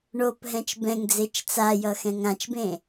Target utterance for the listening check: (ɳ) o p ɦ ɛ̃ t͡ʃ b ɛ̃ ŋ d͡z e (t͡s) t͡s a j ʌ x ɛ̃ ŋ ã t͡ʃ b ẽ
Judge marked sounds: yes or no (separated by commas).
yes, no